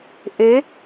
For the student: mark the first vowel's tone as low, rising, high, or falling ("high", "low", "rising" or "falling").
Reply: rising